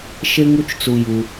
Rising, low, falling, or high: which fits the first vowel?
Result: low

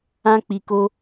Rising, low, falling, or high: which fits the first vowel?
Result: high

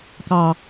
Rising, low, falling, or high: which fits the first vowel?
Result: low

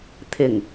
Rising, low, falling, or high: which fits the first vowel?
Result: low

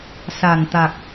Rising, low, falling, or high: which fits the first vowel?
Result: low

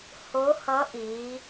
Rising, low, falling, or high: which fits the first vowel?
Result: rising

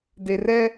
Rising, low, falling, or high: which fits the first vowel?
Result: low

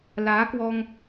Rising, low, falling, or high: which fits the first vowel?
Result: rising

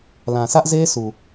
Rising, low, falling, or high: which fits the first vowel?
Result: low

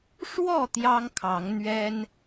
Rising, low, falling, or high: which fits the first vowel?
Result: falling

